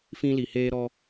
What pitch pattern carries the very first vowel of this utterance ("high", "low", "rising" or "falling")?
high